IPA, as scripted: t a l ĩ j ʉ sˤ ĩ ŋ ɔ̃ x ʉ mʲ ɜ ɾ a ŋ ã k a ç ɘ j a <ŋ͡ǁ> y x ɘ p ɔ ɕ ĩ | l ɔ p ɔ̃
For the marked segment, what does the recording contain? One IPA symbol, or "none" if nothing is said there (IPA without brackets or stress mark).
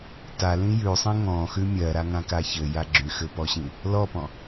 ɡ͡ǁ